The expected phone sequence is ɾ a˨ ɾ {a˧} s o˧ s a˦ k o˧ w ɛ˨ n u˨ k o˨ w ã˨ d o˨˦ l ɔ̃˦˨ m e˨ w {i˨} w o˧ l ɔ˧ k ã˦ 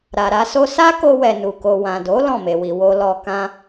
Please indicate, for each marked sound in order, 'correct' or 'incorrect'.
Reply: correct, correct

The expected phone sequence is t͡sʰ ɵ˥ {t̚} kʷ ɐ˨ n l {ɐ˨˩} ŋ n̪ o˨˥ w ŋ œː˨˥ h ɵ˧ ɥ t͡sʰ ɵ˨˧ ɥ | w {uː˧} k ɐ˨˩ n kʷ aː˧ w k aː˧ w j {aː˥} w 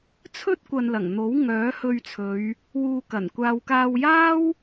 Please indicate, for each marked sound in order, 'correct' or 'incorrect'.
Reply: correct, correct, correct, correct

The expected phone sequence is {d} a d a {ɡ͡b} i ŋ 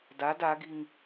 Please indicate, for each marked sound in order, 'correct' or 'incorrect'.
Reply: correct, incorrect: ɡ

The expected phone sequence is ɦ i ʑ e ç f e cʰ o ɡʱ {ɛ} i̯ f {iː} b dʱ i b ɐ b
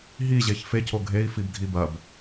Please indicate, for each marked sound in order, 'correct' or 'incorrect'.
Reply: incorrect: e, incorrect: i

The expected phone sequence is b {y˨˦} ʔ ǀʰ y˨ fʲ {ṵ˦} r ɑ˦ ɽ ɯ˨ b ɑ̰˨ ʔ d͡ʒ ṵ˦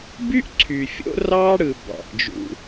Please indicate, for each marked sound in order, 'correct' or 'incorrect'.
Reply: incorrect: y˦, incorrect: o̰˦

